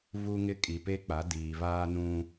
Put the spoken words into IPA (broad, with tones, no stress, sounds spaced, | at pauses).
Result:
v u˦ ŋ ɪ˦ kʼ i˨ p e˦ k͡p a˨˦ d iː˨ v aː˦ n ũ˦